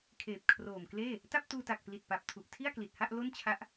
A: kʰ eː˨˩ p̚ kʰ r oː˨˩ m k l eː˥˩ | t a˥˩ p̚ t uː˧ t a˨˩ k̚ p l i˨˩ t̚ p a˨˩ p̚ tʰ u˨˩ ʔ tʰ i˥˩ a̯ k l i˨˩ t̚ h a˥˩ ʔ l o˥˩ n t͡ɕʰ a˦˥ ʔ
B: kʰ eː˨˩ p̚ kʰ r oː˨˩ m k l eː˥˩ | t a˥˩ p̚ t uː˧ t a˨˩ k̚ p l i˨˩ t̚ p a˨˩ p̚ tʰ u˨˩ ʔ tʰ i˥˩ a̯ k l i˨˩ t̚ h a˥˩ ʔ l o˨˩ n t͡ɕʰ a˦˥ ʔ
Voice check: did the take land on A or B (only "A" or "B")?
A